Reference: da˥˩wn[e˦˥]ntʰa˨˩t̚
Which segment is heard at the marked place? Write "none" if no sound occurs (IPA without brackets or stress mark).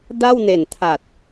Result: e˨˩